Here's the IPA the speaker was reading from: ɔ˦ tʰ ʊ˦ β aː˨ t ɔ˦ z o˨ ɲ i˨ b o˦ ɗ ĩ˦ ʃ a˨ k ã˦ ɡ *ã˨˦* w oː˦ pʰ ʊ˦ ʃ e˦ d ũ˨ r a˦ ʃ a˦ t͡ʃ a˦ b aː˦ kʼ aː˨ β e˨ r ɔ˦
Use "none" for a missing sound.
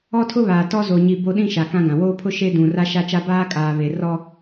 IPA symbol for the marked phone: ã˨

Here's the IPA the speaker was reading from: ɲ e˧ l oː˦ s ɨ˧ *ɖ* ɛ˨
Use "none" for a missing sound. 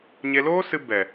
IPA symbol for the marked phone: b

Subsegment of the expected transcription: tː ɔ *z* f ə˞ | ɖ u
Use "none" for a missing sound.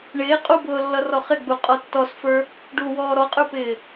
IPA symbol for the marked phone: s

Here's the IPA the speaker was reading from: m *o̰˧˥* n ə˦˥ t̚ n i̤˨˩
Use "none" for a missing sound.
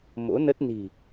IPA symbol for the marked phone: o̰˧˥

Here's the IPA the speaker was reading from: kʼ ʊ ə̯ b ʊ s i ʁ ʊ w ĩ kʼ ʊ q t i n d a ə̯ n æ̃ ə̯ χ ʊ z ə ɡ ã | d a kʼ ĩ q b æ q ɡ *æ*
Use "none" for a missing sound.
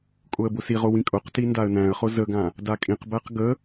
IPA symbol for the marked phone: ə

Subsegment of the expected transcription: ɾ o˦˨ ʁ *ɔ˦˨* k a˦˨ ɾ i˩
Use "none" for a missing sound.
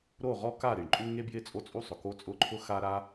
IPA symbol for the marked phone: ɔ˦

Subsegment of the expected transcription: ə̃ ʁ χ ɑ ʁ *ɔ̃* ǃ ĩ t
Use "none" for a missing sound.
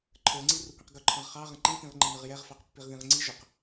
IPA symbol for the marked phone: ə̃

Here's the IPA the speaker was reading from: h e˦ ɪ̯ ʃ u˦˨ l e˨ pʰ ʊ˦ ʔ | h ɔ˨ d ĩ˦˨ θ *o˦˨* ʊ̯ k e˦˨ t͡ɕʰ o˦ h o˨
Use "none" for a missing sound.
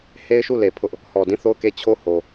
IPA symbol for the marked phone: o˦˨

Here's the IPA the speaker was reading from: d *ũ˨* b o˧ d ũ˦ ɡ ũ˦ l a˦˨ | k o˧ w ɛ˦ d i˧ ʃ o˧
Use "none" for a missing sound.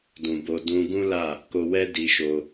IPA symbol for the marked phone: ũ˨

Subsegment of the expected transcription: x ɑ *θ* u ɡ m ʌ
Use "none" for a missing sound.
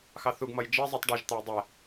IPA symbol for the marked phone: θ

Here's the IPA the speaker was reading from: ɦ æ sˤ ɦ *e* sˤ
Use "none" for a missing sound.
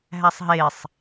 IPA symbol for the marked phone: e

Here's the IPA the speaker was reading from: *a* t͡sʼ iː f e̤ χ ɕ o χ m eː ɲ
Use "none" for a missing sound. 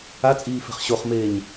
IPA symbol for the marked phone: a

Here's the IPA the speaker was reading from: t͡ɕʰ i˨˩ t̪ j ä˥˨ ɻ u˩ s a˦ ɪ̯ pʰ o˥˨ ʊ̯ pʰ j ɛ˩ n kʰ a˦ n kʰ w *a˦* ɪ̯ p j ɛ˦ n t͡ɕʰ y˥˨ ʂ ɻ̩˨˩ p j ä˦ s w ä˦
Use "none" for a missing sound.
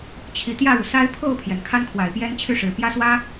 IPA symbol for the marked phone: a˨˩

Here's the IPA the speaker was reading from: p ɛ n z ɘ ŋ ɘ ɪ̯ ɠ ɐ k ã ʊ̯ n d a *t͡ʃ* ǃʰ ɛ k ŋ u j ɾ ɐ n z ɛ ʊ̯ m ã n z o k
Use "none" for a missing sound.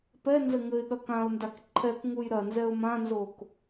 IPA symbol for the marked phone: k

